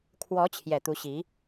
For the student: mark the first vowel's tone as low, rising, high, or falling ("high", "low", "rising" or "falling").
rising